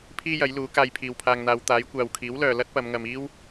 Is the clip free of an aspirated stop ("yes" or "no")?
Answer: no